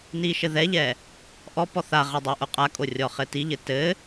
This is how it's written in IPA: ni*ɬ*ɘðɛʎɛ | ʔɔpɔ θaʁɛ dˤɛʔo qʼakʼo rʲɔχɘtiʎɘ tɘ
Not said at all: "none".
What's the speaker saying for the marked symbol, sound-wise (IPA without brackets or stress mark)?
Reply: ʃ